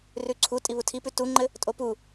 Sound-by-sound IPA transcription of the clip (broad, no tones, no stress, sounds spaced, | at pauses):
r ʉ ǀʰ u tʼ i β u tʰ i p ʉ t u ŋ͡ǃ ɘ | tʼ o p u